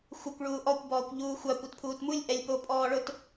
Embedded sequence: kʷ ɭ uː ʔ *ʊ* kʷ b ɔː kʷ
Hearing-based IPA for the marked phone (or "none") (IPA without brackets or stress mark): ɔ